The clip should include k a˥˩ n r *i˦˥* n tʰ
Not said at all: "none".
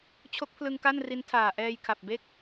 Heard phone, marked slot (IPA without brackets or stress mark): i˦˥